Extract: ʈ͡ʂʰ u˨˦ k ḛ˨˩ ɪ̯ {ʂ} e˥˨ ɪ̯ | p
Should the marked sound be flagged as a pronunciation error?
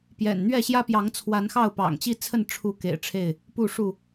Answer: yes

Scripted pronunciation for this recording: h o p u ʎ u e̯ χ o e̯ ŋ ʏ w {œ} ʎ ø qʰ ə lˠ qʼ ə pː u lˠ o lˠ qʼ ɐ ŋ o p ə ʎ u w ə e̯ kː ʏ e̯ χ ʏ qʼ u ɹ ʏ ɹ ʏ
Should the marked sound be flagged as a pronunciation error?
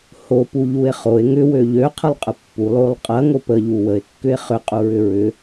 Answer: yes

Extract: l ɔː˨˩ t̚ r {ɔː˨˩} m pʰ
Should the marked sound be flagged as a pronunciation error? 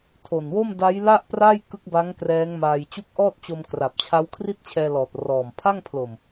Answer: no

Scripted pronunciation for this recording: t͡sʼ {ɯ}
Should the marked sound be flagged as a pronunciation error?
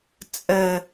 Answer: yes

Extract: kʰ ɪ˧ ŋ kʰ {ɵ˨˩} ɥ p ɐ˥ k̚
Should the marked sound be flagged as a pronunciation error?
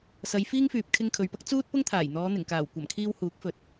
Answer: yes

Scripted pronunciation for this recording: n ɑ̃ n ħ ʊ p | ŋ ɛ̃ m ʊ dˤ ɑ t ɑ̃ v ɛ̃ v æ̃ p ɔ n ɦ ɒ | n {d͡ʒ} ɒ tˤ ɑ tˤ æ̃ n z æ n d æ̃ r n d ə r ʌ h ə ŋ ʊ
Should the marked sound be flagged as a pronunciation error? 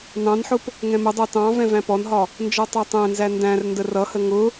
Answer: no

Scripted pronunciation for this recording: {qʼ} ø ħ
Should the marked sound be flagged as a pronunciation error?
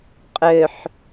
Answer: no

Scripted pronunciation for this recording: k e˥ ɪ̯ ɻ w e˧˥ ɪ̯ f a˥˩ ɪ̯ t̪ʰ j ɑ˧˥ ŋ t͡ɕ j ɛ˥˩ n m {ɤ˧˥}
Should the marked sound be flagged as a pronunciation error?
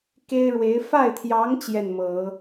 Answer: yes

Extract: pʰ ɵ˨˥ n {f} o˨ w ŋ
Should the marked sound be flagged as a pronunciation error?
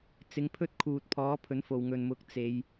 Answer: no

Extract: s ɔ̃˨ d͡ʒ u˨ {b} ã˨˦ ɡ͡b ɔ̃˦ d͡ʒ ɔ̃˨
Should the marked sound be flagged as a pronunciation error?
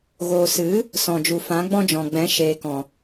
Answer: yes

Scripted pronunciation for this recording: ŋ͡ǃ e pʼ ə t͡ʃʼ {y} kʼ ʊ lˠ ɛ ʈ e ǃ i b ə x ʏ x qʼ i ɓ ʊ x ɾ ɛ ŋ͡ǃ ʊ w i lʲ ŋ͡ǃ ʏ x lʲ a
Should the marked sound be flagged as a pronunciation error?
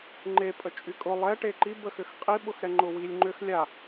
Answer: no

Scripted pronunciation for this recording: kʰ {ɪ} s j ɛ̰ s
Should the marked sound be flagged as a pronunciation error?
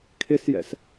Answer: no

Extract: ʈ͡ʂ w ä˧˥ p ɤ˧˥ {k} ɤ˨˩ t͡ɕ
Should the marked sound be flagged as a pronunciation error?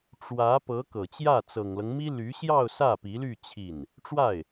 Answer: no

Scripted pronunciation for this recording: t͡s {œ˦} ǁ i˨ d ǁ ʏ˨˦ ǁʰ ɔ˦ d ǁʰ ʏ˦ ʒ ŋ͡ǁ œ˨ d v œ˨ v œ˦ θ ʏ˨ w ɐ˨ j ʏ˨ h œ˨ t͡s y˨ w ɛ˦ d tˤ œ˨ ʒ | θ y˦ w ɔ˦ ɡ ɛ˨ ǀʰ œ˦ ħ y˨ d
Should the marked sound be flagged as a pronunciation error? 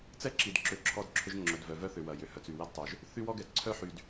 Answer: yes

